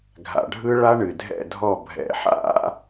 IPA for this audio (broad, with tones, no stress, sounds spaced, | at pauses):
ɡʱ a̰˨˩ ɖʱ ɯ˦˥ ɭ a˦˥ ɳ ɨ˨˩ dʱ ɛ̰˦˨ dʱ ɔ˦˨ bʱ ɛ̰˨˦ ħ a̰˦˥